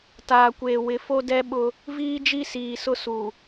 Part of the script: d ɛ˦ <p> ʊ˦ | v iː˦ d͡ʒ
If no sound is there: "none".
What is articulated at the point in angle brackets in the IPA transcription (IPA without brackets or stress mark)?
ɓ